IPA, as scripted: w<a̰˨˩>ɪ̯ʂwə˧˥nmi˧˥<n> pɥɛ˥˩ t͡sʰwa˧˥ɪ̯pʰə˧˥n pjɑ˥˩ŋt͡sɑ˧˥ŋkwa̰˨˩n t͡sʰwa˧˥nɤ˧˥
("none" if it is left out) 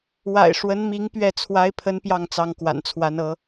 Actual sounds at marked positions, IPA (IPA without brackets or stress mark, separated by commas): a̰˨˩, ŋ